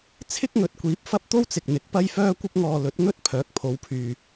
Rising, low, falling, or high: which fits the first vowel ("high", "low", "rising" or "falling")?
high